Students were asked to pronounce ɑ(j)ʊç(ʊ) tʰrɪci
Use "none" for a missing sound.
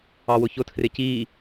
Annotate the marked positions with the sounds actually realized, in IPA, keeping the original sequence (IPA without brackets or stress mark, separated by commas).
w, ʊ